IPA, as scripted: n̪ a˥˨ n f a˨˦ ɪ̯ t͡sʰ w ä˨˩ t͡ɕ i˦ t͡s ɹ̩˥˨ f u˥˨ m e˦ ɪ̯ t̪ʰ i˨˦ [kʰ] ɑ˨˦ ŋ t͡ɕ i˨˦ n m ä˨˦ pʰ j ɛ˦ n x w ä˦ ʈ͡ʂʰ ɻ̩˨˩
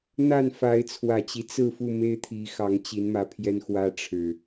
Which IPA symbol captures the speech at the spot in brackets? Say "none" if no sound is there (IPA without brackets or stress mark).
x